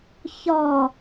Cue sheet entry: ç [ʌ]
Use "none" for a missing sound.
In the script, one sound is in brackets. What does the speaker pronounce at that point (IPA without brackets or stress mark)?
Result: ɒ